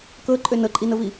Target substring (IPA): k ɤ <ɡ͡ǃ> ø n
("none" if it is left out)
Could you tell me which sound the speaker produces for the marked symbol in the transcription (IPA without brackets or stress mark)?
ǃʼ